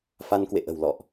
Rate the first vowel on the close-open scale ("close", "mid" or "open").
open